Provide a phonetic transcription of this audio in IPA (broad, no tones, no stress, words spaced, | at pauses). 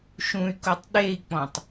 ʃũy̯kotˤ ɗei̯k͡pɔ̃tˤ